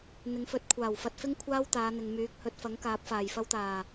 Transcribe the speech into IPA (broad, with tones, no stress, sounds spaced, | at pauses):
n̪ ɪ˨˧ ŋ f ɵ˨˥ t̚ kʷʰ aː˨˩ w f ɐ˧ t̚ f ɪ˥ ŋ kʷʰ aː˥ w t̪ aː˨˧ n̪ ɪ˨ ŋ m yː˨˥ k̚ h ɵ˨˥ t̚ f ɐ˨˥ ŋ k aː˨˥ p̚ f aː˨ j f ɐ˥ w t̪ aː˨˩